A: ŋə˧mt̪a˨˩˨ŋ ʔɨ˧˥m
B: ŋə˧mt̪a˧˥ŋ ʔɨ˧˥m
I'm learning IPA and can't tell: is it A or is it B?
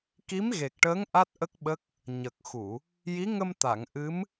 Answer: A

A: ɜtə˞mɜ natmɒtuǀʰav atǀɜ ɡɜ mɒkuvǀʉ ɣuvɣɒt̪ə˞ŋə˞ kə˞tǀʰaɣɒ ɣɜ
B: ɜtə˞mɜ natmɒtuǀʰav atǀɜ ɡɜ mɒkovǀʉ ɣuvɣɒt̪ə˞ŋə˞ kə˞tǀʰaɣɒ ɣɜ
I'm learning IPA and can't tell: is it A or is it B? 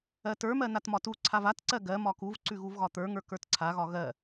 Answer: A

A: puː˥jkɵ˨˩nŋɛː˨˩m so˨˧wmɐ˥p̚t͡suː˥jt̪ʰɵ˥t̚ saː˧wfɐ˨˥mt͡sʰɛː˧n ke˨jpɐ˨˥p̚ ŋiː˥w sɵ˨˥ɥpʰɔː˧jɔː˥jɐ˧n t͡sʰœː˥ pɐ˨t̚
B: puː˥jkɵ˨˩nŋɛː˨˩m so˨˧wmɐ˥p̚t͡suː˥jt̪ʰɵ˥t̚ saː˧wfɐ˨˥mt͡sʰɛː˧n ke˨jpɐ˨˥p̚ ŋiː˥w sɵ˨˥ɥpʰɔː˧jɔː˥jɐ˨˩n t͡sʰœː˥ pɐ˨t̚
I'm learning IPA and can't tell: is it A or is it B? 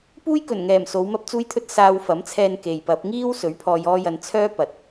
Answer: A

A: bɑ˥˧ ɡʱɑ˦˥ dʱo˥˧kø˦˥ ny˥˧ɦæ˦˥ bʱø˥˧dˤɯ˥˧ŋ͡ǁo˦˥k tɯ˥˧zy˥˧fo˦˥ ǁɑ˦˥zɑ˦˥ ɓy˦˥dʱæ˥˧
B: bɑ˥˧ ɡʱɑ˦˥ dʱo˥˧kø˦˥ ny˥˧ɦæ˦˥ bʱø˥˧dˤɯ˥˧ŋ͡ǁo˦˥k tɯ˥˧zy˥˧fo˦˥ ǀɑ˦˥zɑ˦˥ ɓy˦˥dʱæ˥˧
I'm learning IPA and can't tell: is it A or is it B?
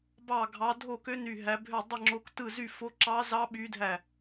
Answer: A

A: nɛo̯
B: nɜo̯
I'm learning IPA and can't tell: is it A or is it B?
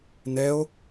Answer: A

